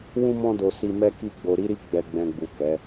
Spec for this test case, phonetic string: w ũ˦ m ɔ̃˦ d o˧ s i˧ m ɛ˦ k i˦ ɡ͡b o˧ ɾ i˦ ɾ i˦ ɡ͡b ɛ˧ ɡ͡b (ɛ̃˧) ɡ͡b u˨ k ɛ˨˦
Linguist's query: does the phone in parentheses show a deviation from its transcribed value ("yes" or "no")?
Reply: no